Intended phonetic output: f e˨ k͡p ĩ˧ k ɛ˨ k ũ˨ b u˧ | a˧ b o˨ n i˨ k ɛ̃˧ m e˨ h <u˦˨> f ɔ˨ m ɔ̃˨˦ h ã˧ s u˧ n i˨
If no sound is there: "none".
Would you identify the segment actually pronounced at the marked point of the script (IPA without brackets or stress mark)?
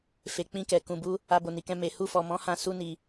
u˧